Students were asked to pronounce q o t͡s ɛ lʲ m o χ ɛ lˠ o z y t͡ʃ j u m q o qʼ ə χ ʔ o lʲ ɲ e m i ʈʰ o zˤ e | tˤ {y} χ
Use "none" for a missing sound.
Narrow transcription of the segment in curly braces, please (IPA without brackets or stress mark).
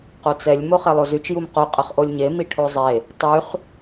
y